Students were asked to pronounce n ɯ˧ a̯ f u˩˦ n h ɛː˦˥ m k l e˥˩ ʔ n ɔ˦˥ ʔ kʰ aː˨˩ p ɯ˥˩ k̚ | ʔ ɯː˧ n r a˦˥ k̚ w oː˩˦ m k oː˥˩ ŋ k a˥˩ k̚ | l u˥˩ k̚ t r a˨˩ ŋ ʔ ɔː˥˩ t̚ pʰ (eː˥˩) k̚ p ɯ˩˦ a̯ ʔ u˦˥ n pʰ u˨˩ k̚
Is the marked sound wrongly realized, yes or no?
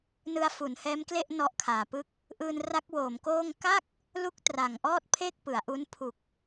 no